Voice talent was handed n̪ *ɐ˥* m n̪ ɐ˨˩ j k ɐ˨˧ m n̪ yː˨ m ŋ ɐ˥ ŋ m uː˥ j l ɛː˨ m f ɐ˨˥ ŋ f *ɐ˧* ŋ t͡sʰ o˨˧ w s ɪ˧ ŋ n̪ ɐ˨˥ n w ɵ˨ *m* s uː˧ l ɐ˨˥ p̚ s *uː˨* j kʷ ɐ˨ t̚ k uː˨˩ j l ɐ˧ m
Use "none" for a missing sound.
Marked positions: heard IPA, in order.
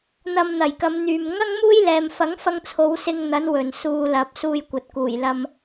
ɐ˧, ɐ˧, n, uː˧

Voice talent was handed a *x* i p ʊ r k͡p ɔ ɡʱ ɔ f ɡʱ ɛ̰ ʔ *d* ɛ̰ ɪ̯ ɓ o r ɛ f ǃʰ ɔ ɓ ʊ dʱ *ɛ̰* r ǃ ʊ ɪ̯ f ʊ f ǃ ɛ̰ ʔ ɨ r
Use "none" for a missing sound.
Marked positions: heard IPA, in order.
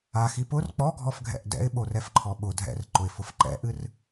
x, d, ɛ̰

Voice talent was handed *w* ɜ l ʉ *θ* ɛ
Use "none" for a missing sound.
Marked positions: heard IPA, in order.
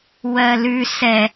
w, s

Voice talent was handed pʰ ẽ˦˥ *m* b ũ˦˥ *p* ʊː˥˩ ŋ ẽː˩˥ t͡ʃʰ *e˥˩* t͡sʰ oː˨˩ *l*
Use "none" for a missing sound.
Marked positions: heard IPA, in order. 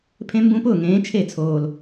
m, p, e˥˩, l

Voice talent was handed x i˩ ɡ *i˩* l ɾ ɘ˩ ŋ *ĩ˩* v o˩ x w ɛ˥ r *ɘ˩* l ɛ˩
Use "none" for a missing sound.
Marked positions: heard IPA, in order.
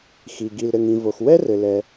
i˩, ĩ˩, ɘ˩

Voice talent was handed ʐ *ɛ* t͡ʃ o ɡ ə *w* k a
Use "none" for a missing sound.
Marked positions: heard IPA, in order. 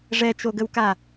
ɛ, w

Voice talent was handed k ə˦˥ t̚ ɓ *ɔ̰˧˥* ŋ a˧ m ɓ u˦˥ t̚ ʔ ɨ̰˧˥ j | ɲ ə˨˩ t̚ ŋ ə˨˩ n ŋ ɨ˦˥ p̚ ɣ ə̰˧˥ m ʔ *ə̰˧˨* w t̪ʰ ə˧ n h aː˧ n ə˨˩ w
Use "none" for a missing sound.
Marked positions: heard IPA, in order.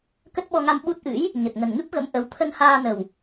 ɔ˧, ə˨˦

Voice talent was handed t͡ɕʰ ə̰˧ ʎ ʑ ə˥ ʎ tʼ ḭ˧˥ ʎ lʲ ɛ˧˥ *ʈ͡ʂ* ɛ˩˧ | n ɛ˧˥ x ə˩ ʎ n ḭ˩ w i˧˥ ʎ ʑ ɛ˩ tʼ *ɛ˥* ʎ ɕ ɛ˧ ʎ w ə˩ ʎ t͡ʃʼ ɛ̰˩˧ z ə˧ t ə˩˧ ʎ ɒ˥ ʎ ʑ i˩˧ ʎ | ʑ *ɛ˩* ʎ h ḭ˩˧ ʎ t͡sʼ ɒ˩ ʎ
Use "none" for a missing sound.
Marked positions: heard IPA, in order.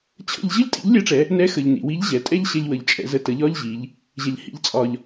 ʈ͡ʂ, ɛ˥, ɛ˩

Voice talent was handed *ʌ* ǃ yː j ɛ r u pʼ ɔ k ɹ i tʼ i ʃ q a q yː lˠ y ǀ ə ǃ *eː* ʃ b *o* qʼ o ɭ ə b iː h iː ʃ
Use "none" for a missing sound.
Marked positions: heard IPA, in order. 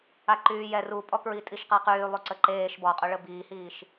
a, eː, ɔ

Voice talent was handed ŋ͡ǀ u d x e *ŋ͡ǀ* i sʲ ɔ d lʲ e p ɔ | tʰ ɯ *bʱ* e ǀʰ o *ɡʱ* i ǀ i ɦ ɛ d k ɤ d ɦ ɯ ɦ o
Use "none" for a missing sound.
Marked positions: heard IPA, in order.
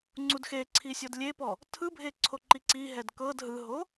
ǀʰ, bʱ, ǃ

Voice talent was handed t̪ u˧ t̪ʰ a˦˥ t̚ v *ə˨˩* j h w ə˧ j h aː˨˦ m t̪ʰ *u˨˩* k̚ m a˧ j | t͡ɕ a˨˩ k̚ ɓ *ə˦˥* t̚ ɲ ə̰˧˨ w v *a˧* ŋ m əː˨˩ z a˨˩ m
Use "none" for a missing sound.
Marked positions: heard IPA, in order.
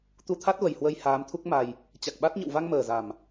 ə˨˩, u˦˥, a˦˥, a˧

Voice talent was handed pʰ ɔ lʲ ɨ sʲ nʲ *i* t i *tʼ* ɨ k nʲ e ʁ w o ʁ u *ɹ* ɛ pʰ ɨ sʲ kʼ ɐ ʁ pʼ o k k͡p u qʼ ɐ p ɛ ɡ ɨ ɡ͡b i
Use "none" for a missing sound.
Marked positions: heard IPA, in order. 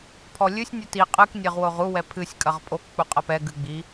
ɨ, qʼ, w

